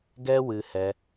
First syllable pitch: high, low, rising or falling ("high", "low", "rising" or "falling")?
high